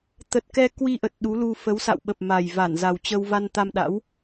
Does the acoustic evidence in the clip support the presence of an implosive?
yes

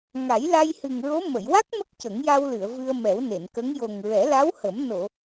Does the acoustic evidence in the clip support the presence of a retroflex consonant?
no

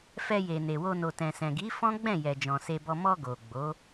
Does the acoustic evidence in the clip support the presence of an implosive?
no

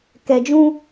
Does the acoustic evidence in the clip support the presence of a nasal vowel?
yes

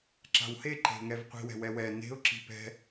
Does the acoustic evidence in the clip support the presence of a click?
yes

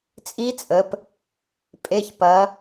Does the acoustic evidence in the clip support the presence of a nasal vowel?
no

